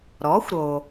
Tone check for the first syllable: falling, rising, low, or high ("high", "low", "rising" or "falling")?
rising